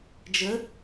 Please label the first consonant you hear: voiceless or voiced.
voiced